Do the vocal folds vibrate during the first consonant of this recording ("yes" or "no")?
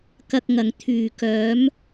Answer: no